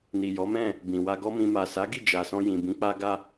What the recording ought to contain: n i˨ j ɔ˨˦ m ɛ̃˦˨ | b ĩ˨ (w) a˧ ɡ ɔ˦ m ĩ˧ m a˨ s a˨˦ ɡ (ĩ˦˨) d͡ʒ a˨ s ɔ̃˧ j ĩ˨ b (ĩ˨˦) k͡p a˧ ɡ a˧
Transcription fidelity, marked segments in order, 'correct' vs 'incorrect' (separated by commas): correct, incorrect, correct